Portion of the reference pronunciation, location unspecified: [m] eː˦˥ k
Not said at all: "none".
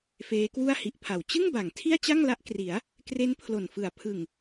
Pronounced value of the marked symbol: f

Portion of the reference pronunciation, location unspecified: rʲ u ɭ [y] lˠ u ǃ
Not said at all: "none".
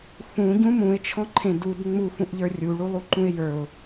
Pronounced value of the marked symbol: u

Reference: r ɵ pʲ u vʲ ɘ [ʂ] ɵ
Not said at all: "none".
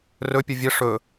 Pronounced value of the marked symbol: ʂ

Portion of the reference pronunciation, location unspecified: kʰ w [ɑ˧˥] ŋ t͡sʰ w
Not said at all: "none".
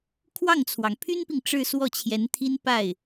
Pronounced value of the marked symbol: ɑ˥˩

